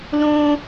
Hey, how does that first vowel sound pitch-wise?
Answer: high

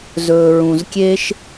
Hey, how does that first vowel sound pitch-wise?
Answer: low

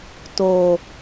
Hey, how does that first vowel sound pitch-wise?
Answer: low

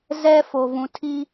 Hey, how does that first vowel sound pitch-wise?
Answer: high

